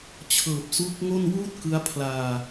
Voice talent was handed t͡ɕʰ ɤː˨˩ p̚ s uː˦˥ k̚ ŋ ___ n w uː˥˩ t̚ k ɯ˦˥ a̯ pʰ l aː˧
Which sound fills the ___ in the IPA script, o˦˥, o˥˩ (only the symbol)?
o˥˩